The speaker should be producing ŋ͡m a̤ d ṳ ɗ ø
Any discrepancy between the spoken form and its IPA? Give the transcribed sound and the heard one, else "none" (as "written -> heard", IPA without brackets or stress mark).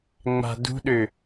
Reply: none